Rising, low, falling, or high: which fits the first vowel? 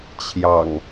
low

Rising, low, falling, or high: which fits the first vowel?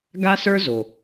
high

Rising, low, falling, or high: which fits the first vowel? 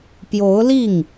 rising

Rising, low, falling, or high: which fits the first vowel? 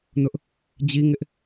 high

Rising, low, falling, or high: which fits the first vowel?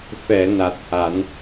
low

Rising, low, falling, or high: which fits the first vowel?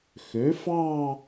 rising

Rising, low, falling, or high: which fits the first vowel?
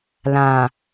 low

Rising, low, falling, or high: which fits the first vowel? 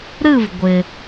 falling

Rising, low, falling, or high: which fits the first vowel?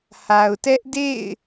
low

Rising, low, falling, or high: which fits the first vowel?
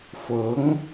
rising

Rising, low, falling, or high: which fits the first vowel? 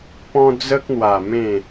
high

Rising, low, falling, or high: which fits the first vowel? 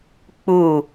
falling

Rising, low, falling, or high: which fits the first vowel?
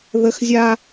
high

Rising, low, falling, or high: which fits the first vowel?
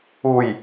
low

